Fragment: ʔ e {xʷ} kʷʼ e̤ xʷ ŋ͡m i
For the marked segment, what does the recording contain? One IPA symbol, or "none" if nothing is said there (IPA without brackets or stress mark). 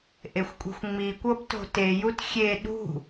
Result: xʷ